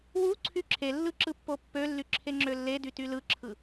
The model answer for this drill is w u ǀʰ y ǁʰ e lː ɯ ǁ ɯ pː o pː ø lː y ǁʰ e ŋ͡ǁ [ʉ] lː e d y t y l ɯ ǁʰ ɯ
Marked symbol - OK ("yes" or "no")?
no